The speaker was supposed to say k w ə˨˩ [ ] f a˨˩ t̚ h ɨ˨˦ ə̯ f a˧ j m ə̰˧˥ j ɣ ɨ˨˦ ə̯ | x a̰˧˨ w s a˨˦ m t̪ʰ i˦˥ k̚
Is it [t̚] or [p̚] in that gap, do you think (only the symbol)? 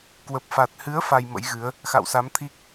p̚